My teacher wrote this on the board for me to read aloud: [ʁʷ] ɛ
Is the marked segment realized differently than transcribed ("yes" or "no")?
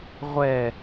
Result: no